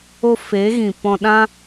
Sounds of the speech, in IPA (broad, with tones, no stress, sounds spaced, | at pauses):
o˧ f e˨˦ ɣ ĩ˨ p ɔ̃˧ ɗ ã˦